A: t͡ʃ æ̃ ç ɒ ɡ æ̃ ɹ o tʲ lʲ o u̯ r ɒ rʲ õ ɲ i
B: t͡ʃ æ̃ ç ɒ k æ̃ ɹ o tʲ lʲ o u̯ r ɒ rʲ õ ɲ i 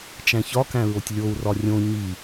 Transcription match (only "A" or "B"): B